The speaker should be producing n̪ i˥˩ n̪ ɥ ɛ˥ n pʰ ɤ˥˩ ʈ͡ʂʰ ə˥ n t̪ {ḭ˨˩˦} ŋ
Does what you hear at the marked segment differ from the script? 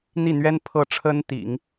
no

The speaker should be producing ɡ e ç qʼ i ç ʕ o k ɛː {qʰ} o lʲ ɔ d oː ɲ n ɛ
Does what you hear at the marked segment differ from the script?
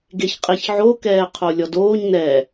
no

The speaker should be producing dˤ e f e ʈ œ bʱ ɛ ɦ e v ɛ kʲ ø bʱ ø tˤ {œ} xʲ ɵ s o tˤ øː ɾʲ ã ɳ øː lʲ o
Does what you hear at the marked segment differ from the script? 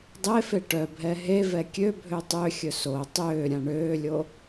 yes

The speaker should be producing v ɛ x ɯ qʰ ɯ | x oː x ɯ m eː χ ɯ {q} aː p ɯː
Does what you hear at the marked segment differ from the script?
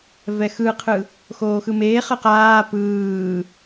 no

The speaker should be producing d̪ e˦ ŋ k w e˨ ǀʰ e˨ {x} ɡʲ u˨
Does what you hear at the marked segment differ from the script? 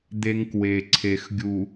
no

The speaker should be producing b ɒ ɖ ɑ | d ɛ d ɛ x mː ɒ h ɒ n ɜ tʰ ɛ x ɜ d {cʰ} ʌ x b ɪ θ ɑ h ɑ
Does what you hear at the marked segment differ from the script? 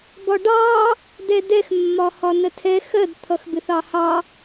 yes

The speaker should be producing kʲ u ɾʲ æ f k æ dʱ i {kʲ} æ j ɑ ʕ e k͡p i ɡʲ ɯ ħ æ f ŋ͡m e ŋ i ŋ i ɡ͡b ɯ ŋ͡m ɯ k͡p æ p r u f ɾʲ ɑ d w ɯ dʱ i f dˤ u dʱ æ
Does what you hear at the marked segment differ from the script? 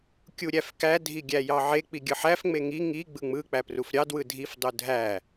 yes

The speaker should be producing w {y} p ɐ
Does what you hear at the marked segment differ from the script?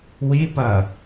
yes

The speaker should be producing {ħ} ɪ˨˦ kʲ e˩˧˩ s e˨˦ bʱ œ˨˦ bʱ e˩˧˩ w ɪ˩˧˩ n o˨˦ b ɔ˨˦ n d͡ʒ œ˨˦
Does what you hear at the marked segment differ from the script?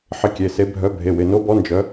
no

